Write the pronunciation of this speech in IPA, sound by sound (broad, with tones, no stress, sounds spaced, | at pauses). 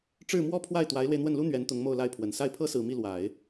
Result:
ʈ͡ʂ ɻ̩˥˩ m w ɔ˥ pʰ w a˥˩ ɪ̯ t̪ w a˧˥ ɪ̯ l w e˧ ɪ̯ n̪ w ə˥˩ n l u˥ n̪ ɥ ɛ˧˥ n t̪ ʊ˧˥ ŋ m o˥˧ ʊ̯ l a˥˩ ɪ̯ pʰ w ə˨˩ n s a˥˩ ɪ̯ pʰ ɤ˥ s ɹ̩˨˩ m i˥˩ l w a˨˩˦ ɪ̯